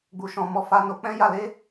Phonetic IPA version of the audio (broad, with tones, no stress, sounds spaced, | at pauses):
ɡ͡b u˨ ʃ ɔ̃˨ m ɔ˧ f a˧ n o˧ k͡p ɛ̃˦ j a˧ l e˦